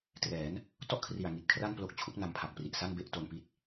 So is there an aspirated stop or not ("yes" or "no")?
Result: yes